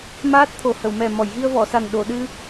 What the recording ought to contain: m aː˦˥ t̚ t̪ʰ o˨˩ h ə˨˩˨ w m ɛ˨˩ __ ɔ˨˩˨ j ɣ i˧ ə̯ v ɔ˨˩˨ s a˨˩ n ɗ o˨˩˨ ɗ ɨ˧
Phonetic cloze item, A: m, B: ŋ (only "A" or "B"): A